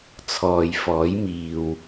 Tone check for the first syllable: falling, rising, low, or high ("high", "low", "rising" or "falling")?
low